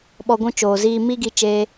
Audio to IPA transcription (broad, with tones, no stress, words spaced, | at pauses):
ɓɔ˧ɡʷũ˦t͡ʃoː˨ziː˦ mi˦ɡi˧t͡ʃeː˧